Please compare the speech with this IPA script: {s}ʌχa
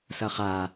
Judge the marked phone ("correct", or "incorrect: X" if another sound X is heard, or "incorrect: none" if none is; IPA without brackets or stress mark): correct